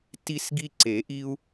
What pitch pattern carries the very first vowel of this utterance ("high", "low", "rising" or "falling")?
high